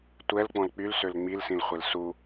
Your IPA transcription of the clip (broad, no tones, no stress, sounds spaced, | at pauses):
tʷ ɛ l k͡p ɔ̃ l k͡p y l s ø l ŋ͡m i l s ĩ l χʷ e l s u